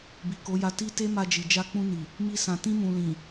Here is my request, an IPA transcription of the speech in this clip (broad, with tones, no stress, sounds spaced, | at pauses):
b i˨ k o˨˦ j a˧ t i˦ t e˦ m a˧ d͡ʒ i˨ d͡ʒ a˧ k͡p ũ˧ n i˨ | m i˦ s ã˧ t ĩ˧ m ũ˨ l ĩ˨